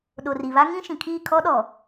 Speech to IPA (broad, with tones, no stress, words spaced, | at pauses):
ɗo˨ri˨βa˦ ŋĩ˦ʃĩ˨kʰiː˦˨ kʰɔ˦ɗɔ˨